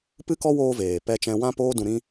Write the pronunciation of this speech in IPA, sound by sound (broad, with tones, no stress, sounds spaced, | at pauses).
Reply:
p ɨ˦ k ɔ˦ w oː˧ v eː˨ p ɛ˧ t͡ʃ ɛ̃˧ w ã˦ p oː˦ d ũ˧ ɾ ĩ˦